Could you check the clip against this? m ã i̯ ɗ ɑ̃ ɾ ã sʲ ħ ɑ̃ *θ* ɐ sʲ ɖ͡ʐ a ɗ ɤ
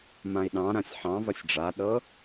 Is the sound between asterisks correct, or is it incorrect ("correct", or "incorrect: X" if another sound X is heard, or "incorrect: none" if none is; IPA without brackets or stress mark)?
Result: incorrect: v